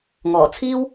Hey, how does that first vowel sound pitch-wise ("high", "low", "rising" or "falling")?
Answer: low